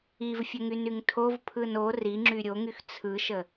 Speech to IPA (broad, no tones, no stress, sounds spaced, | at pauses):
i v fʲ ə ŋ y n y ŋ tʰ o v pʰ ɯ n o r i ŋ͡ǁ y ɾʲ o ŋ y x t͡sʰ ɯ ʃ ə